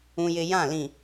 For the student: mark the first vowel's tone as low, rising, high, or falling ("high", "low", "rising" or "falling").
high